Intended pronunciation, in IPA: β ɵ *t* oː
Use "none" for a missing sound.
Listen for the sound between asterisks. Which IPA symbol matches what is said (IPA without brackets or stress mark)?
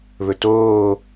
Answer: t